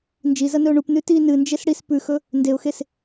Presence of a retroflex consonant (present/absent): present